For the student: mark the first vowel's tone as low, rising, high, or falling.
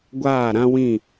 falling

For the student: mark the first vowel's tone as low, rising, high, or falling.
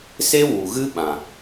high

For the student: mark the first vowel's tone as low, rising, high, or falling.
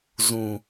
low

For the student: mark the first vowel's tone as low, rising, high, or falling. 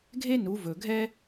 high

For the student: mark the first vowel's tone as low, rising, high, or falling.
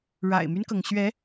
low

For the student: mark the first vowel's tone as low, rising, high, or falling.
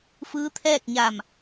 rising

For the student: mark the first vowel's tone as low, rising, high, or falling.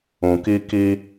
low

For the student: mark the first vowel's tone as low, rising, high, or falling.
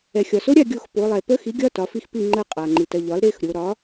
low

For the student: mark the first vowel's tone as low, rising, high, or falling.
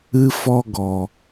high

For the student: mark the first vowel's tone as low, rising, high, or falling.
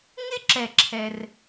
high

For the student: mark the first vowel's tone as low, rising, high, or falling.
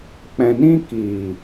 low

